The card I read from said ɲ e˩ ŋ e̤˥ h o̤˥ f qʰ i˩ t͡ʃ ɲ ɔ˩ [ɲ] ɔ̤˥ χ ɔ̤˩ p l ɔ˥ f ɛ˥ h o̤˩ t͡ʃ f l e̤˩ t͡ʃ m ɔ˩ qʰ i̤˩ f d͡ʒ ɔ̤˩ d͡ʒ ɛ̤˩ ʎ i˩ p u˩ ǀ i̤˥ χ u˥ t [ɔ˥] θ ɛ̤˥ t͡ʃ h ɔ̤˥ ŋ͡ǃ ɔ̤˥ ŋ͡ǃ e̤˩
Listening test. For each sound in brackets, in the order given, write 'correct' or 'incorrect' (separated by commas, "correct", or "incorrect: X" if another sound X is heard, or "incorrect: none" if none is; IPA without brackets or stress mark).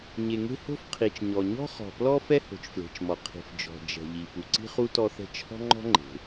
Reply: correct, correct